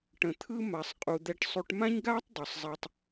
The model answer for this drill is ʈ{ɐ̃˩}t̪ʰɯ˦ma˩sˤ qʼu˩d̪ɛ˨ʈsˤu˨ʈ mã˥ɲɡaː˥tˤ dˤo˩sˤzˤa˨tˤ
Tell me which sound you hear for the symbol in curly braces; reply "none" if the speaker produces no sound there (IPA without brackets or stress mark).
ə̃˩